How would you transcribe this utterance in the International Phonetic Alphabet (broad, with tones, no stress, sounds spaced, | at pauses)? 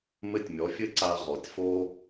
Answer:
m ɘ˥˩ tʲ mʲ ɔ˩˥ fʲ ɘ˥ ǀ a˧ ʁ ɔ˩ tʲ f o˥